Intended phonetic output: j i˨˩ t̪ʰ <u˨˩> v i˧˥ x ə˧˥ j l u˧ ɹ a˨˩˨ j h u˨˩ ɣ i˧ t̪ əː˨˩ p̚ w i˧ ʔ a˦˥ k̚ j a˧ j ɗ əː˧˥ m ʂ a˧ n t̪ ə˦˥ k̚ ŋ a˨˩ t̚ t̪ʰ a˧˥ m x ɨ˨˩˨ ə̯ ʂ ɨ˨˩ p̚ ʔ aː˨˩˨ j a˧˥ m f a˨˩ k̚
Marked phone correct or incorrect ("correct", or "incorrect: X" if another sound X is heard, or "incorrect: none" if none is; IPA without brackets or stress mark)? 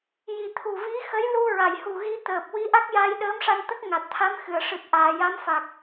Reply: correct